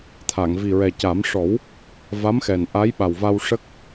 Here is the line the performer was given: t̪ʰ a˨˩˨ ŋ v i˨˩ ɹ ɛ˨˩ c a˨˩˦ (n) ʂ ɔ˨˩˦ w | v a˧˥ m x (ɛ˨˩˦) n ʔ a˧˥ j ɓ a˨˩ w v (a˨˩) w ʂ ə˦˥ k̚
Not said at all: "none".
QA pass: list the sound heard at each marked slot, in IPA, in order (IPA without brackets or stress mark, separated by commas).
m, ɛ˨˩, a˧